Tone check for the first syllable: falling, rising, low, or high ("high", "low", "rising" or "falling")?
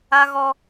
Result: high